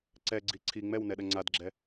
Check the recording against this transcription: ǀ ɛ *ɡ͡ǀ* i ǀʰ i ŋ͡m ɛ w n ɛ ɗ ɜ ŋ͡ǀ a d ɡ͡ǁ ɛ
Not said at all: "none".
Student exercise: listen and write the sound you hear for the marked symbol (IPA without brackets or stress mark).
ɡ͡ǀ